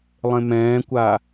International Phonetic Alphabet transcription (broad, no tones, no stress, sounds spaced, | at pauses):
lˠ ẽ m ɛ̃ː kʷ a